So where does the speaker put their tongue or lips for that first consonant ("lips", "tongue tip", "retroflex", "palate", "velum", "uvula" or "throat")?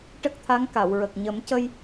retroflex